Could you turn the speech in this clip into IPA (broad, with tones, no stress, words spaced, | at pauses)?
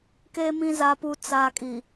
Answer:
ke˨mĩ˨ za˨pu˨ t͡saː˨kʼi˨